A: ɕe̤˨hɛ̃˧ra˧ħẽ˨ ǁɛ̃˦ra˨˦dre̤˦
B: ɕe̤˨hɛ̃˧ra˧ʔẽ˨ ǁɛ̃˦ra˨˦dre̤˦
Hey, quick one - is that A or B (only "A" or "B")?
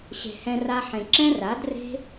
A